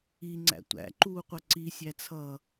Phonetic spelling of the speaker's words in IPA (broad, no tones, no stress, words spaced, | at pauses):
iŋ͡ǀæ̰ tʷæ̰ǃuːqʷʌ ǀisʲæt͡sʰʌː